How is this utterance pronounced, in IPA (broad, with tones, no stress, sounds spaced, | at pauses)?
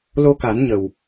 l o˧ k a˨˩˦ n ɲ ə˨˩ w